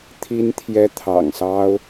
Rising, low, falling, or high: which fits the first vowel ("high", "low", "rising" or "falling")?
high